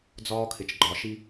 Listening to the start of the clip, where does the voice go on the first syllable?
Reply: high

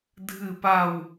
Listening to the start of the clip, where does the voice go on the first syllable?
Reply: falling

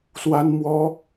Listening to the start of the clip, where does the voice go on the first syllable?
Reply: high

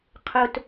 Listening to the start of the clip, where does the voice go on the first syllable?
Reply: high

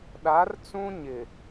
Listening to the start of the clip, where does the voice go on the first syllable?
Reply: rising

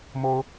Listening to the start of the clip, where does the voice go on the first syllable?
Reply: high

